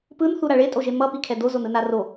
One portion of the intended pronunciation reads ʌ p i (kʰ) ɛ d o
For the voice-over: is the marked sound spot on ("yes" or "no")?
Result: yes